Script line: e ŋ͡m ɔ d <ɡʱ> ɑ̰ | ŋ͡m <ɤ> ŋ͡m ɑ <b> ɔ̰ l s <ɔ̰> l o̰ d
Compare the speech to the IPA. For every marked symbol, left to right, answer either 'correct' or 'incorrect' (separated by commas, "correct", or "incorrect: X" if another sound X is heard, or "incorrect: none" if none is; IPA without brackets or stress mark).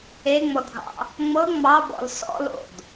correct, correct, correct, correct